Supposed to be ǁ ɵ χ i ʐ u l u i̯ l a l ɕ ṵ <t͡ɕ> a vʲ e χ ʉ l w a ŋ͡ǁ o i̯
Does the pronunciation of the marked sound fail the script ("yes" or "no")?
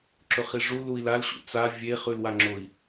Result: yes